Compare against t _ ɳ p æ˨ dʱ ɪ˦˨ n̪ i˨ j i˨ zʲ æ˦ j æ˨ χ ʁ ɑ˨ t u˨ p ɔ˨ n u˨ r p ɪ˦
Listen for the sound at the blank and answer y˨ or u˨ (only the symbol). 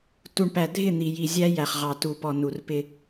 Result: u˨